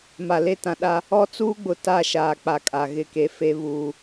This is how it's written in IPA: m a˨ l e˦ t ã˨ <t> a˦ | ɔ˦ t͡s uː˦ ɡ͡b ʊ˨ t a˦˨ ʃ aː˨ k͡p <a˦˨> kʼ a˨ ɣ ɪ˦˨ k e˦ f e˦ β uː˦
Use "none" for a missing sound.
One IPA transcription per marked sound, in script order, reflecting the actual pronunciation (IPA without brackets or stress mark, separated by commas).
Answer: ɗ, a˨